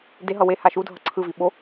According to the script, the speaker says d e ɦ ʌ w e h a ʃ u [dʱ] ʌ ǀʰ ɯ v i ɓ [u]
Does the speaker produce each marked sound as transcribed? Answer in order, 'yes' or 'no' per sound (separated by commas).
yes, no